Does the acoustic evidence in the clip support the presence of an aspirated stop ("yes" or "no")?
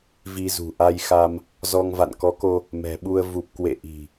no